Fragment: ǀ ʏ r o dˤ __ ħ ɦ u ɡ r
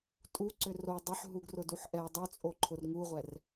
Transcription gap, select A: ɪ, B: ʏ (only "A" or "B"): B